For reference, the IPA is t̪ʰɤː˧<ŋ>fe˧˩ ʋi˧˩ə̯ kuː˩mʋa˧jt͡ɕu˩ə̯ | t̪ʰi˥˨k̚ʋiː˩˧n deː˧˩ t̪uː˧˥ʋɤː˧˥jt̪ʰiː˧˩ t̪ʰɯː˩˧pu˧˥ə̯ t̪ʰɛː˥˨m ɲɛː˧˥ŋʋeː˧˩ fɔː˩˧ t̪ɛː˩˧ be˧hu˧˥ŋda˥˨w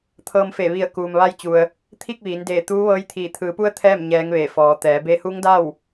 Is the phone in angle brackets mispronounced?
yes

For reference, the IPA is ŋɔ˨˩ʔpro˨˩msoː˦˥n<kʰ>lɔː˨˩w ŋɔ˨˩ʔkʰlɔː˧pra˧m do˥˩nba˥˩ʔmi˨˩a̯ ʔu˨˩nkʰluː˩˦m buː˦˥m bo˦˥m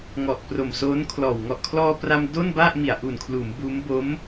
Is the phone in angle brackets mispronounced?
no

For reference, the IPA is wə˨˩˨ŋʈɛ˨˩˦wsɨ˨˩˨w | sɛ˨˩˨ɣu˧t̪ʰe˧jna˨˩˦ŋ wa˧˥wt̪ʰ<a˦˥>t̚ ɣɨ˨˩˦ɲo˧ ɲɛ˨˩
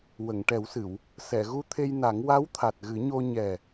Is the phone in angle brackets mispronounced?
yes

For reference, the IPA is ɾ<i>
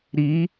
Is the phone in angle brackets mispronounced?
no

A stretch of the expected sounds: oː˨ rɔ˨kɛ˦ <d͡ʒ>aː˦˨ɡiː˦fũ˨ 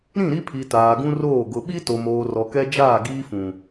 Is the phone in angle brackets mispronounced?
no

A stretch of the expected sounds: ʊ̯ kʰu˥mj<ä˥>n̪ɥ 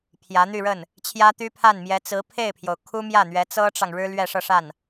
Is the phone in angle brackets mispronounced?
yes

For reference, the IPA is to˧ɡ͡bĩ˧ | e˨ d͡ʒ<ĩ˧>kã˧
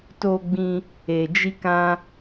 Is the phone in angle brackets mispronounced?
yes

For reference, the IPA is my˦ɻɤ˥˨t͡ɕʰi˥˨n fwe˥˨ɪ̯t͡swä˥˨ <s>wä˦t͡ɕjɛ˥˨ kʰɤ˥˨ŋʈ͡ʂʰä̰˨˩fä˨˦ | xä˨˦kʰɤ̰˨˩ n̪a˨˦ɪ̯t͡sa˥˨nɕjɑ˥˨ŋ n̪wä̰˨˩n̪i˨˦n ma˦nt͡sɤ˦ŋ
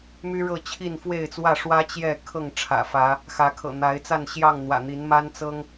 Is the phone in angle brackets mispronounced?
yes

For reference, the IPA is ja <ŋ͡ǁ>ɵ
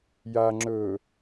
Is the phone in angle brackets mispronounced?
no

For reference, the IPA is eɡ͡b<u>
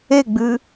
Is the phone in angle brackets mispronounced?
yes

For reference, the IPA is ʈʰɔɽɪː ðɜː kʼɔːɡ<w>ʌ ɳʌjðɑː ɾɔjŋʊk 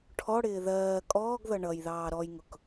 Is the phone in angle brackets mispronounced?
yes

